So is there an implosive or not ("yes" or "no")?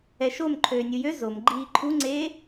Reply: no